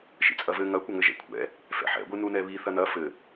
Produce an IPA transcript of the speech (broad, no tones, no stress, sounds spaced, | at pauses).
ʃ ḭ t͡sʼ ɐ v ɘ ŋ ɐ kʷ ɐ ŋ ɘ ʒ ɛ̰ kʷʰ ɛ̰ | f ɛ̰ ħ ɛ̰ ɡʷ ɨ n u n ɛ β i θ ɐ n ɐ f ɘ